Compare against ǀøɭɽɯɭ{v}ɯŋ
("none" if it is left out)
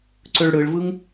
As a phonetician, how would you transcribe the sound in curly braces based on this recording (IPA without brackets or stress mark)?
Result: v